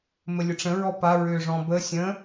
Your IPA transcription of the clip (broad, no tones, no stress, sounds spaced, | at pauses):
m ə lʲ ə ʈ͡ʂ ə̃ ɹ ɔ p a ɹ ʏː ʐ ɔ̃ b ə sʲ ə̃